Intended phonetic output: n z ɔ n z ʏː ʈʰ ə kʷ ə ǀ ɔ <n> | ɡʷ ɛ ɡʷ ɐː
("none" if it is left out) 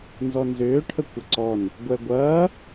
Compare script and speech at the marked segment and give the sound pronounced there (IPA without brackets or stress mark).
n